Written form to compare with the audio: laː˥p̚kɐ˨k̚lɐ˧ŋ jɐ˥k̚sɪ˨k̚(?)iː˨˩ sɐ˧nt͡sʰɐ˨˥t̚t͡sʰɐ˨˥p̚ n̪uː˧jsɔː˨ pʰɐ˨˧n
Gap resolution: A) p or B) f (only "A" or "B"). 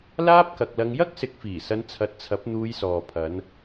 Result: B